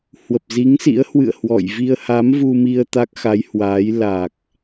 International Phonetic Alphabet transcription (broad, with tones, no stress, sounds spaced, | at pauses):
h w ə˨˩ p̚ z i˨˦ ŋ s ḭ˧˥ ə̯ h w ɨ̰˧˨ ə̯ h w ɔ̰˧˨ j v i˧ ə̯ h a˨˦ m v u˧ m i˧ ə̯ t̪ a˦˥ k̚ x a˨˦ j h w aː˨˦ j l a˨˩ k̚